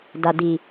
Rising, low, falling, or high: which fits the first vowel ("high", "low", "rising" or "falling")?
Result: low